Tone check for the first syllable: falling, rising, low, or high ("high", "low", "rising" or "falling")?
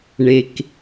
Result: low